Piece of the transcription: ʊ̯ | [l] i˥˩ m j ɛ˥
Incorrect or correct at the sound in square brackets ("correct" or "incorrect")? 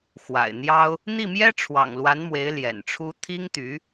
incorrect